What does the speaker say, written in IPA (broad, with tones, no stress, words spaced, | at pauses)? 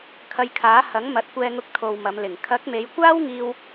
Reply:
kʰɐ˧jkʰaː˨˥ hɐ˨˥ŋ mɐ˨˥t̚kʷɛː˧ŋʊ˧k̚ t̪ʰo˨w mɐ˨˧mlɪ˨˩ŋ kʰɐ˨˥k̚me˨˧jkʷaː˥wŋiː˧w